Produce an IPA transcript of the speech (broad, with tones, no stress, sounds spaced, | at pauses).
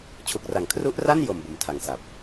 t͡ɕʰ u˨˩ k̚ r a˨˩ ŋ kʰ r u˦˥ ʔ r a˥˩ n j o˨˩ m b o˨˩ m tʰ a˨˩ ŋ s a˨˩ p̚